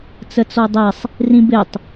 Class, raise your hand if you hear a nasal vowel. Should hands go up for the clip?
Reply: yes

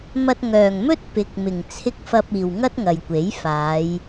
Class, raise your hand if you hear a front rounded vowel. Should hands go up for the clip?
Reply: yes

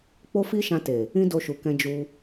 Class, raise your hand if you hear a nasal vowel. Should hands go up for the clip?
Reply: yes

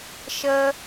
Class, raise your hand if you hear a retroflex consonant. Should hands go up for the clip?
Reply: no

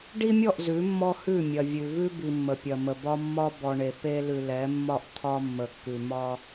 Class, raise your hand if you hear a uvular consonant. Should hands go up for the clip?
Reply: no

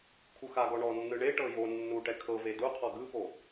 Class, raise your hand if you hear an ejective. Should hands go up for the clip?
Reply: no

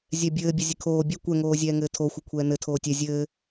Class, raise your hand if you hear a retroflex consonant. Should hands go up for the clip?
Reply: no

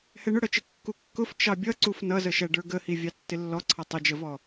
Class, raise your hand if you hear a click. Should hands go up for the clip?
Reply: yes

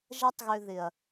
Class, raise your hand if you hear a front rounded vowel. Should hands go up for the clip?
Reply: yes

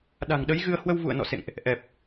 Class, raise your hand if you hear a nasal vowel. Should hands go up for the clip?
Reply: no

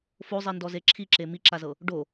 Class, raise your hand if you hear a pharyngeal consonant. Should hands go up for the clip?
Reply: no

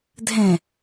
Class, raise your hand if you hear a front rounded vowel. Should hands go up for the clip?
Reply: no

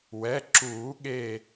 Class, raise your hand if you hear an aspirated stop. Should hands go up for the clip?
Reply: no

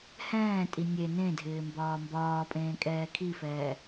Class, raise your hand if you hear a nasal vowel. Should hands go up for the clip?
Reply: yes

